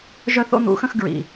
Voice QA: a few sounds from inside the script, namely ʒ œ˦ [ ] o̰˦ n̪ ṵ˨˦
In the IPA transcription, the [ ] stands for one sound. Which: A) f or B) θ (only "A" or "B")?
B